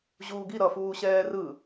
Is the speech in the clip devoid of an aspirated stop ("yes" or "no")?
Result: yes